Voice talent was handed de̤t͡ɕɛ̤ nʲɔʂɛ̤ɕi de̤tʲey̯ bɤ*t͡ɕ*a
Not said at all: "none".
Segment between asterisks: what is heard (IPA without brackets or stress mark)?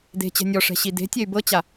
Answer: t͡ɕ